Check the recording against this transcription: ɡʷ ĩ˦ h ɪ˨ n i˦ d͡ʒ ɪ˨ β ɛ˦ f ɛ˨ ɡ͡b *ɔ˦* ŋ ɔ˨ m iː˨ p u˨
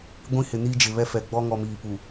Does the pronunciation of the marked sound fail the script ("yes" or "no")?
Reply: no